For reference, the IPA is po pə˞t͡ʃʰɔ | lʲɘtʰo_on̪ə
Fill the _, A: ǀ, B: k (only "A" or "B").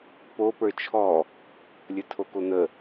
B